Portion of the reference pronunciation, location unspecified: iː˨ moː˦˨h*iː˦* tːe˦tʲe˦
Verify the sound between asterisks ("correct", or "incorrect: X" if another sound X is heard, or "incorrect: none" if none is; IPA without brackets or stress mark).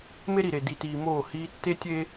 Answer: correct